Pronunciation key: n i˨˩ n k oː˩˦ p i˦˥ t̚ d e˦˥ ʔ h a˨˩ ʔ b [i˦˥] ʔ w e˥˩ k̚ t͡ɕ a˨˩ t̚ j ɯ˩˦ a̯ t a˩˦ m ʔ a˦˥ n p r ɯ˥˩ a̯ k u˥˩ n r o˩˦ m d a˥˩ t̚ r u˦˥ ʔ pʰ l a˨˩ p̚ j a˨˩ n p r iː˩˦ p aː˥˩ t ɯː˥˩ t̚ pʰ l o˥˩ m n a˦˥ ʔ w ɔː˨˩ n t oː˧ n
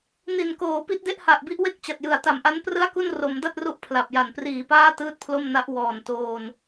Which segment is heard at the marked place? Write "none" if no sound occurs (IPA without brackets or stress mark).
i˦˥